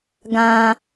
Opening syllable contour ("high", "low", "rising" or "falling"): high